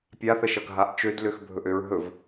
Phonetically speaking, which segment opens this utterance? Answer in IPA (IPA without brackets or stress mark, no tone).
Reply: pʲ